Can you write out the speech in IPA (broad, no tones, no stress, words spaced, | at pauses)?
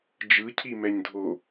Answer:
d͡ʒɯcʰi mɛɲdʱo